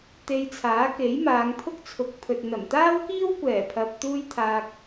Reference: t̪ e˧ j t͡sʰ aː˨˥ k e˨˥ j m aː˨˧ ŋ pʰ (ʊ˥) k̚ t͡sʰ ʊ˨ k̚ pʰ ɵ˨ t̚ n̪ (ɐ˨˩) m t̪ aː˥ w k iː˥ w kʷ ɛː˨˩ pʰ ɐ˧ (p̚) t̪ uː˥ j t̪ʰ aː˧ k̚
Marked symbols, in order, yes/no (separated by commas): yes, yes, yes